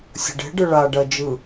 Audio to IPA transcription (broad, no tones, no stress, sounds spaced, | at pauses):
sʲ ə̤ ɖ e̤ ɖ ɯ ɭ a ɖ ɜ d͡ʒ ɯ